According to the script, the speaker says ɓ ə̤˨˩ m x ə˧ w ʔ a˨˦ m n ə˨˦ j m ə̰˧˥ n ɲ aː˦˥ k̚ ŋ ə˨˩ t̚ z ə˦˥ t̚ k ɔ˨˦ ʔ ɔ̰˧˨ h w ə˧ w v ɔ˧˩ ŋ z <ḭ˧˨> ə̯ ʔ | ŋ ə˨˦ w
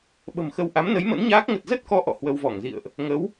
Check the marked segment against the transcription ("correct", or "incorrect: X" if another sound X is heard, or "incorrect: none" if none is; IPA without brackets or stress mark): correct